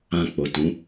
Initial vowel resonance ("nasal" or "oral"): nasal